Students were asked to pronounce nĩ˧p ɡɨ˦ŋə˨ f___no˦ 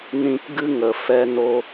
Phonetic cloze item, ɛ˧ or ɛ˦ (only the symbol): ɛ˦